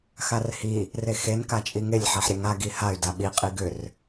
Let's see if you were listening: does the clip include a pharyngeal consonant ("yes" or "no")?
yes